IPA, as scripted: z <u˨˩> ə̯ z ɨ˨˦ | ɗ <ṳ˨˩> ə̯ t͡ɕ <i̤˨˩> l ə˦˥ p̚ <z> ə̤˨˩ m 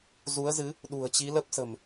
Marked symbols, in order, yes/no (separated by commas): no, yes, no, no